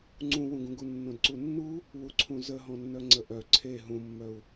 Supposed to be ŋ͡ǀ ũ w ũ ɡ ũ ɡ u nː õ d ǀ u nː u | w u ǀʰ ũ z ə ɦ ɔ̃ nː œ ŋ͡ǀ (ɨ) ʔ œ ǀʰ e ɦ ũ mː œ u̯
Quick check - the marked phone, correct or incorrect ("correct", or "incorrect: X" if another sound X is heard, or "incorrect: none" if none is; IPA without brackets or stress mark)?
incorrect: ə